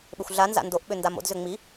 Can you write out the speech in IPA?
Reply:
ɓʏxʷɮanza̰ ndoʔɓʏ ndamo̰dzʏ ŋ͡mi

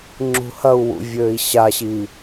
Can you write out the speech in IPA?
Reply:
ŋ͡ǁṳhɐu̯wṵ vʲøːi̯ɕaɕi

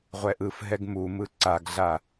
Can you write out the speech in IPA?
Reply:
ʁʷɛʔɯfɦɛɡ mumɯ ǀaɡɮa

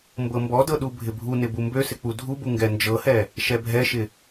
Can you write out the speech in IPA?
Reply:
mbɤmbɔdɤ ɗubʱɪbʱunɪ bumbøsɪ k͡pudʱubu ŋɡɛnd͡ʒɤhɛ | ʃɛbʱɛʃɪ

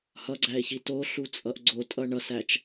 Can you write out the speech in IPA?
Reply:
hʌɡ͡ǀæe̯çi toɬut͡sʼʌʔ ɡ͡ǀotʼʌ ɳʌsæt͡ʃ

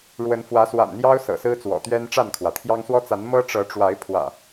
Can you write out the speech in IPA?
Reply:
ɻwə˨˦nfwä˨˦ swa̰˨˩nn̪jɑ˦ʊ̯ sɤ̰˨˩sɹ̩˦t͡swɔ̰˨˩t̪ɥɛ˦n ʈ͡ʂa˥˨nkʰwä˩t̪ʰjɑ˦ŋ swɔ˦t͡sa˨˦n mɤ˦ ʈ͡ʂɤ˨˦ʈ͡ʂwa˨˦ɪ̯ pʰwä̰˨˩

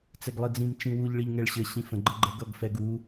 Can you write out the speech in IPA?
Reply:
t͡sɛɡlˠid͡zĩm t͡ʃĩwuʎ ɭiʎŋɛɭɕɘ ɕĩfə̃ ɡ͡ǃəɡ͡ǃə ɡʌɡfɛɡu

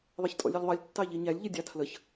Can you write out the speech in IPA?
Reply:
ðˤʌçtʼɔ̰lʲɛlʲðˤʌlʲ tːɑʎiɲælʲ ʎɪdʲɑtʰləç

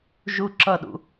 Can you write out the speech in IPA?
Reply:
ʒu ǁʌ ɗṵ

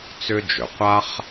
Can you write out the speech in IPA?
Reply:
t͡sʏ˥d͡ʒø˩ qʷa˥χ

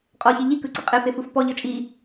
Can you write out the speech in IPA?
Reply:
qʼɔçi ʎikɯǀɯ qʼefefɯf pɔʎɤ t͡ʃʼi

